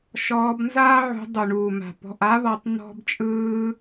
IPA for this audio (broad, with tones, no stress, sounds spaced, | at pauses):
ʃ ɔː˧ b n z aː˦ ʕ ṳ˧ dˤ u˨ ɳ uː˨ m a̤˨ p ɔ̤˨ ʔ a˧ β ɔ˨ tˤ n̪ ɔ̤˦ b t͡ʃʼ ɯː˦